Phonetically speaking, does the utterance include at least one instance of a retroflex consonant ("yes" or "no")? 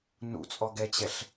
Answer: no